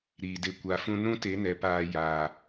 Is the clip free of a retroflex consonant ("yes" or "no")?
yes